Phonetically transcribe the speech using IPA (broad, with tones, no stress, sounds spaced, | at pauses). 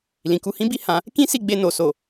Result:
l ĩ˨ k u˧ h ĩ˦ b i˦ h ã˧ | k ĩ˦ s i˦˨ ɡ͡b e˧ n o˨ s o˨